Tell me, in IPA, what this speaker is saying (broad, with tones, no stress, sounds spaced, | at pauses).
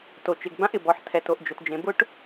t o˩ t͡ʃ ɪ˩ ɡ b ã˥ ʔ ɪ˩ b ɔ˩ ħ tʰ ɛ˩ t o˩ ʔ d͡ʒ ʊ˩ t d͡ʒ ẽ˩ b ʊ˥ ʈ